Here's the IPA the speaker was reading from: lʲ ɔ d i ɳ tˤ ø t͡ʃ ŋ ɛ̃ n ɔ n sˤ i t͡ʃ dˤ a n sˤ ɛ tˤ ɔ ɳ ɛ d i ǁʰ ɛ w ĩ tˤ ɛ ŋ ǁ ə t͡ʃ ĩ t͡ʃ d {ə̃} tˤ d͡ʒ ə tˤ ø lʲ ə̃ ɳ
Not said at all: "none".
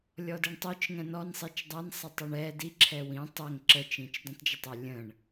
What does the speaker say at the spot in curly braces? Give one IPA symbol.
ə̃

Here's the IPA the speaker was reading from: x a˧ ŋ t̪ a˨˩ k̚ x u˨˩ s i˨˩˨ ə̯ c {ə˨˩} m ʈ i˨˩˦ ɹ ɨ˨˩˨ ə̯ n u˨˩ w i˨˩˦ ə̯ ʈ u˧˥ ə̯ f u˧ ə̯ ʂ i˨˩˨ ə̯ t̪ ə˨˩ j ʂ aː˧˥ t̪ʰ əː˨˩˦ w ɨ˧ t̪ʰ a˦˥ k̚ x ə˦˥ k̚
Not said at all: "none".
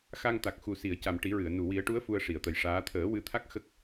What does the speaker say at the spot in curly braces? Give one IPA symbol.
a˨˩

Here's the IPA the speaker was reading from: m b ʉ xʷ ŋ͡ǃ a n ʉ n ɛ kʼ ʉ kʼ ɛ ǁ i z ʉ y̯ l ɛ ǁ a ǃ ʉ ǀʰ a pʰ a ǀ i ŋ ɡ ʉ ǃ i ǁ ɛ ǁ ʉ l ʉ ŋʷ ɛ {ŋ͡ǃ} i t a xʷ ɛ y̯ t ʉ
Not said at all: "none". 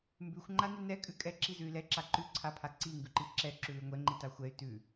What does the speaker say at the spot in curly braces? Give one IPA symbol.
ŋ͡ǃ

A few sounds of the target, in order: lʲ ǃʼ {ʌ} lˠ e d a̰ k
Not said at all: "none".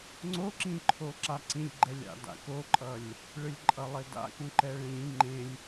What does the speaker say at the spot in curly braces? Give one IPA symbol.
ʌ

